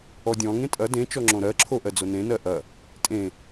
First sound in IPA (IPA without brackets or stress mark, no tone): ɔ